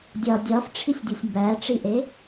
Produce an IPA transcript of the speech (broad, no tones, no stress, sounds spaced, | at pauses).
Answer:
dʲ ɒ dʲ ɒ f ʈ͡ʂʰ i sʲ dʲ u sʲ m b æ ʈ͡ʂ i ʔ e